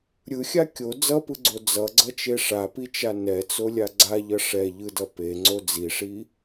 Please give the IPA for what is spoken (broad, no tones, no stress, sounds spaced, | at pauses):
ɾʲ ɯ xʲ a kʲ o d͡z ʌ p ɯ ɡ͡ǀ o d͡z ʌ ɡ͡ǀ ʌ t͡ʃ e ʂ a p i t͡ʃ a n ɛ t͡s o lʲ a ɡ͡ǀ a ʎ ʌ ʂ ɛ ʎ ɯ d ʌ p e ŋ͡ǀ o d͡z i ʂ i